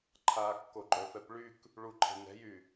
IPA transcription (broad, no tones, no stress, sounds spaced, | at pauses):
ǃʰ a kː o ɡ͡ǃ œ f ɛ p ɭ y k | ɭ u ǃʰ e̤ n ɛ̤ j y